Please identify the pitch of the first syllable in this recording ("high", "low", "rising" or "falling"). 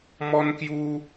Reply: high